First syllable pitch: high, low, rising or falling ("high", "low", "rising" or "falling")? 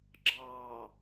low